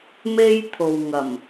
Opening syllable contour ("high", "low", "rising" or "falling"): high